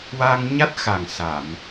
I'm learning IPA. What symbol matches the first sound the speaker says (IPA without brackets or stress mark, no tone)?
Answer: w